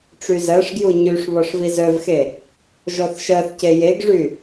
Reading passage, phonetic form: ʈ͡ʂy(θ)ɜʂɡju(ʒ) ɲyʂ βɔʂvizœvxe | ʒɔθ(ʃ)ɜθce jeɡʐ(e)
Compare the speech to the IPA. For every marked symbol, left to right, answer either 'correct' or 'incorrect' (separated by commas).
incorrect, incorrect, correct, incorrect